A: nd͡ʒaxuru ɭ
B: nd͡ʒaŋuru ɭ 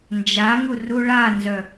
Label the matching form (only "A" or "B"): B